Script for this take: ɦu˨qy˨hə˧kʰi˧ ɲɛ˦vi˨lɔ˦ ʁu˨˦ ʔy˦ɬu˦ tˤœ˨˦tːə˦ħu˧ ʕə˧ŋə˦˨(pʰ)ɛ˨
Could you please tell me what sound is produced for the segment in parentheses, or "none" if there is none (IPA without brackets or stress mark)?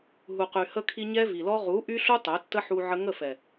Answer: f